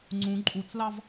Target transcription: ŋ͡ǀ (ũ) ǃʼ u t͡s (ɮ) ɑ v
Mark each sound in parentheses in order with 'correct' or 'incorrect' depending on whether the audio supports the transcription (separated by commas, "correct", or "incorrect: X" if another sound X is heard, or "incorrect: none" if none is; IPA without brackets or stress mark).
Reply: correct, incorrect: l